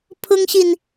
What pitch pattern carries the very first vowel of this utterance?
high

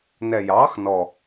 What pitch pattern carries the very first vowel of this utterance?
low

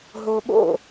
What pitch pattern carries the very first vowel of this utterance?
low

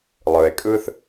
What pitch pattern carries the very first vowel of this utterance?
low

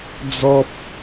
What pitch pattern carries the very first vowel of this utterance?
high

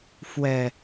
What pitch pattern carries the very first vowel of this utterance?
low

